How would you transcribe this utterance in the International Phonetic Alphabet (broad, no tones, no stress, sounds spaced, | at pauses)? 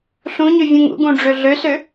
ɬ ũ ɲ ø vʲ ũ ŋ ṵ ɡ ũ ɖ͡ʐ ø ɮ ø s ø